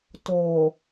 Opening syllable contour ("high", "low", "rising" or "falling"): low